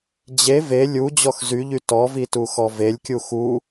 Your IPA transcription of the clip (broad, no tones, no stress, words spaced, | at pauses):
d͡ʑe ve lʲu d͡ʑɔxzyʎy tɔvi tuxɔvelʲkʲu xu